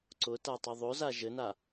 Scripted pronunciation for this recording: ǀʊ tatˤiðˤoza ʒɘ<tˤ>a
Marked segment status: incorrect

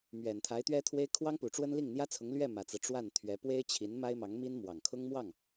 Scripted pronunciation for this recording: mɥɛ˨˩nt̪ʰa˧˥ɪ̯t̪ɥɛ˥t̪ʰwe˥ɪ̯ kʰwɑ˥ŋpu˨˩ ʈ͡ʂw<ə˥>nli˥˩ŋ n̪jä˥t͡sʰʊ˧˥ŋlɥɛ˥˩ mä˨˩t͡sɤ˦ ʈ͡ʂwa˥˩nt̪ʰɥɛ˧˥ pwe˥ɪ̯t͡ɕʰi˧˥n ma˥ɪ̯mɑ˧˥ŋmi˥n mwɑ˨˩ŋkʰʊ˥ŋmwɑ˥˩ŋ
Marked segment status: correct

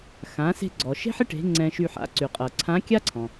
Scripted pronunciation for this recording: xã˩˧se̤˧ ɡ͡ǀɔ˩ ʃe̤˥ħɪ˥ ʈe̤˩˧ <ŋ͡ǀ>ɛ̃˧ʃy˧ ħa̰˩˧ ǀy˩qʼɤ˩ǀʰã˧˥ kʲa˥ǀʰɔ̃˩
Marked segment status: correct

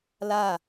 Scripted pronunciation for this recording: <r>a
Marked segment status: incorrect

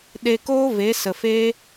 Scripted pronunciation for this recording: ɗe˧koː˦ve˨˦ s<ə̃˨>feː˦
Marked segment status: incorrect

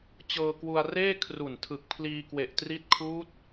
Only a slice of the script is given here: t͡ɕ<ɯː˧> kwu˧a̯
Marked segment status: incorrect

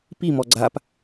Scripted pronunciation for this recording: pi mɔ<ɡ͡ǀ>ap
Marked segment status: correct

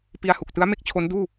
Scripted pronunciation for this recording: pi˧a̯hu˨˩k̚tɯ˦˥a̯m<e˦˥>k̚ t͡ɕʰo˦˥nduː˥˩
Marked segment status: correct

